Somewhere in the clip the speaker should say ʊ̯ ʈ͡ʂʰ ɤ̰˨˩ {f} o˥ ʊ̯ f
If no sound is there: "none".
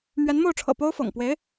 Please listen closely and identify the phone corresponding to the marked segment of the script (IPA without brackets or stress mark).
p